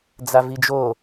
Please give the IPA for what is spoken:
d͡zavid͡ʒo

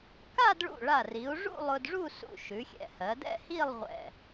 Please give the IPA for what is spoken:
ka˥˧dɭṵ˧˩ ɭa˧˩ri˩˧u̯ʐṵ˥˧ lˠʊ˧dʐu˥˧sṵ˧˩ ʃʉ˩˧xʲɛ̰˧˩hɜ˩˧dɛ̰˥˧ hi˥˧lˠʁʷɛ̰˧˩

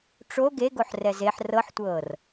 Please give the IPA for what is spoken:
ʈ͡ʂo ɡeɡoħ rɛzeħ rɤħtʷɤːr

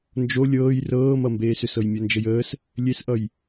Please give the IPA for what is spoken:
nd͡ʒo lʲɤːj rɤːmʌmbeːsʏs ɤjmʲɔnd͡ʒəjəːs | lʲesʔʌj

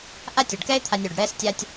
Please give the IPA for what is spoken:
ʔa˦tʲo˩ɖkɛ˦ɪ̯t̪ʰa˨nʲ o˩ɖɽɛ˦stʲa˦tʲ

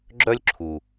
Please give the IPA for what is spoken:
ɡ͡ǁœ˥lʲǁʰu˩

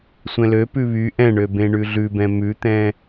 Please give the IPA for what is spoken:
sʷɛ̃lø pʉβy ʔɛ̃ɳø bẽɳʉɮʉbɛ̃ mʉt̪ɛ̃

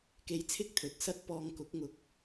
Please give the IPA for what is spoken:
ke˧jt͡sʰɪ˥k̚t̪ʰɵ˨˥t̚ sɐ˥t̚ pɔː˧ŋkʊ˨˥k̚ŋʊ˨k̚

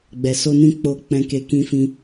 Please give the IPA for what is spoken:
ɡ͡bɛ˨so˧nĩ˧ k͡po˧k͡pɛ̃˧ke˧ kĩ˧fĩ˧

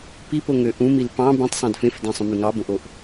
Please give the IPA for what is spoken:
pipoŋø ʔũmil pɑ̃ bẽtˤsˤɑ̃d fẽfdæ̃sˤõmy ŋɑbõʔoʔ

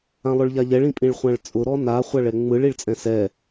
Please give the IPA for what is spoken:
ãlˠʊɭʎaʎɛɭ ĩpʼĩɭχʷãɭt͡sʼʊ ɾɔna χʷaɭɛŋ͡mɯɭ iɭt͡sʼɛ̃sɛ

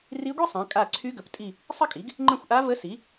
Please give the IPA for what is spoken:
ri˧˥ɡʷi˥ sˤã˩˥kʼa˦˨ ǀʰy˧˥ɡə˩˥ptʼi˦˨ | sˤə˥kʼi˩˥ɡ | ŋ͡ǃə̃˦˨xʷʔa˧˥və˧˥si˩˥

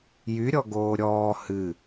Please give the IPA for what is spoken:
jyɾʲɔɡoː ɾʲɔː hɨ

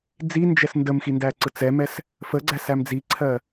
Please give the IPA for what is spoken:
d͡zind͡ʒɛs ndəmxi ndæǀɯt͡sɛmɛs | fə ɡ͡ǀæsæmd͡ziǀʰɜ

